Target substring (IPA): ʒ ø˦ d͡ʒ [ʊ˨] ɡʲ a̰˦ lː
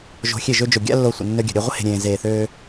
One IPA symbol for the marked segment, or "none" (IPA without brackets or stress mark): ʊ˨